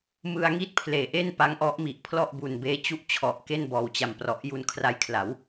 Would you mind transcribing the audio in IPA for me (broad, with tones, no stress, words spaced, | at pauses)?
mɯ˧a̯ŋi˥˩t̚pʰleː˩˦ʔe˥˩n pa˦˥ŋʔɔ˦˥ʔmi˨˩ʔ pʰlɔ˥˩ʔbu˨˩nbeː˦˥ t͡ɕu˥˩ʔ t͡ɕʰɔ˨˩ʔke˥˩n bɔː˨˩wt͡ɕa˨˩m prɔ˨˩ʔju˧nkʰra˧jkʰla˩˦w